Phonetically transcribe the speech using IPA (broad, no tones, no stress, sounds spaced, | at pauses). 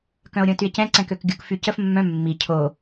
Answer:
k œ̃ o̯ ɾʲ õ t y e̯ c ɛ̃ ǀ ɛ̃ k ø k ɡʲ u k f y c ə f mː œ̃ mː i cʰ o